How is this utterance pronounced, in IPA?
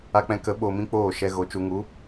a˧ k͡p ɛ̃˧ k ə˨˦ ɓ o˧ m ĩ˦ k͡p oː˦˨ ʃ ɛ˧ ɣ o˨˦ t͡ʃ u˨ ŋ u˨˦

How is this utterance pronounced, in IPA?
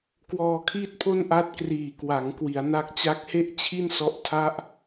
k w ɔː˧ kʰ iː˥˩ t̚ pʰ o˥˩ n ʔ a˦˥ t̚ k r iː˨˩ k w a˩˦ ŋ k w i˩˦ a̯ n a˦˥ k̚ t͡ɕ a˦˥ k̚ h e˥˩ ʔ t͡ɕʰ i˥˩ n s ɔ˦˥ ʔ tʰ a˥˩ ʔ

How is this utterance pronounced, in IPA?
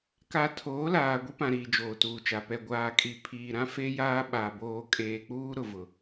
k a˨ tʰ oː˨˦ l aː˨ ɡʷ i˦ p ã˨ ɾ iː˨ d͡ʒ oː˨ t uː˨ t͡ʃ a˨ p ɛ˨ ɡʷ aː˨ kʼ i˨ pʰ iː˨ ɾ ã˦ f e˦ j aː˦ ɓ a˨ b oː˨ kʼ eː˨ k͡p uː˦ ɾ ʊ˨ v ʊ˨

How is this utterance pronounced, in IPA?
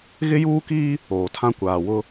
ɣ ɪ˦ j uː˦ k iː˦ | oː˨ tʰ ã˦ kʷ aː˨ w ʊ˦

